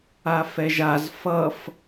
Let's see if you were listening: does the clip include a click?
no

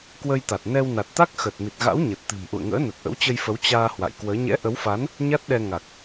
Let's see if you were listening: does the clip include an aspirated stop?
no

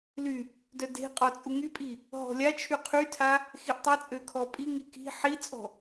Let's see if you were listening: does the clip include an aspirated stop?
yes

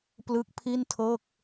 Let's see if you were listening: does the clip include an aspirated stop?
yes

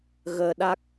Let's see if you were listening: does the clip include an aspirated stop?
no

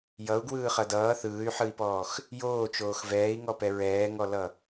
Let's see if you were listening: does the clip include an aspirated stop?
no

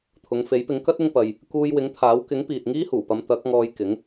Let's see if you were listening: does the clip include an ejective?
no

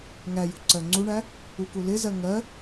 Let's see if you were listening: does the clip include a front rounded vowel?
no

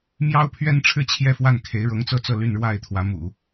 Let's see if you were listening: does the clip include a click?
no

